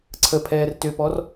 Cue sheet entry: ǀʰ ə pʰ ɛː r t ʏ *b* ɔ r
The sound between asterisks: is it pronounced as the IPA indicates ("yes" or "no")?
no